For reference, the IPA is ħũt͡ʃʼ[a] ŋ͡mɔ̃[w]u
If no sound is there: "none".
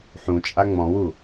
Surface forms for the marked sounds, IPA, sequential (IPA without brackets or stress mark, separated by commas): a, w